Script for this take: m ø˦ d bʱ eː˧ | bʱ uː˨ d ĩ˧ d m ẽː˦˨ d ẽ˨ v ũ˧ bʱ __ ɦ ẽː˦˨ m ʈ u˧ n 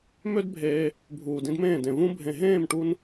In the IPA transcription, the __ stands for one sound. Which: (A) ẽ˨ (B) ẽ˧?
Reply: A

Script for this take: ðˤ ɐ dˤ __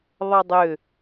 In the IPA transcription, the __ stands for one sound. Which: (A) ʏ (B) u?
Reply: A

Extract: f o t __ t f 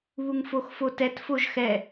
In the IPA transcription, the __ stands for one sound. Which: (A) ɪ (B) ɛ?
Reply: B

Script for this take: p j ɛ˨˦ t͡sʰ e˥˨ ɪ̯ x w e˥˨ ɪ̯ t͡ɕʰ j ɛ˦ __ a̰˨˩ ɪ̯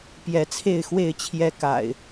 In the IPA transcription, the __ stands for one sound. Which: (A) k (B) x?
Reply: A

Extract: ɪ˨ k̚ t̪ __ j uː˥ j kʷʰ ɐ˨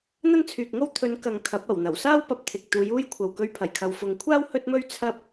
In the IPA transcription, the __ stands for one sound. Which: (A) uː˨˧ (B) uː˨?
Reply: A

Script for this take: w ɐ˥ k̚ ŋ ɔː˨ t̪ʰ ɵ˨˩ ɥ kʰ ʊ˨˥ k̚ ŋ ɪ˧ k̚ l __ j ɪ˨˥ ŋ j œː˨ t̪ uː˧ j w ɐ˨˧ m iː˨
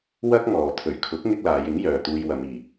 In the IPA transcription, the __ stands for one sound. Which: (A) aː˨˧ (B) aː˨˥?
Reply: A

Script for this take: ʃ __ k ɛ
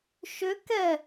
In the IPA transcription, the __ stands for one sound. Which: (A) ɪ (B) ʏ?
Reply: B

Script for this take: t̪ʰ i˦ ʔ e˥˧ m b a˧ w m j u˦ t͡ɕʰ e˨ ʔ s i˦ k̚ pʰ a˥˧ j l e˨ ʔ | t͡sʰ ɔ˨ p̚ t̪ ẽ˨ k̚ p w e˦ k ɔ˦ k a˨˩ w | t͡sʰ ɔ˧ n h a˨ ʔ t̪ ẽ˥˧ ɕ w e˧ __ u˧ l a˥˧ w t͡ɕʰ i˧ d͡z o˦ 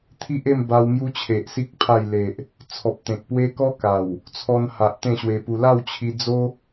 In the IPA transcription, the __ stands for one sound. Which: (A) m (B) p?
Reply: B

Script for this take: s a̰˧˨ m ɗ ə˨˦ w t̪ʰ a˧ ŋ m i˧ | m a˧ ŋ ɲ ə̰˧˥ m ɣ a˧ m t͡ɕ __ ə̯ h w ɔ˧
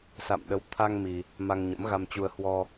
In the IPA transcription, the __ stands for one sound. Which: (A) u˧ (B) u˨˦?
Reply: A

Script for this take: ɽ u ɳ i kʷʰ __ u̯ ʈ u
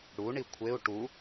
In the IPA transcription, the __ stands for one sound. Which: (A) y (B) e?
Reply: B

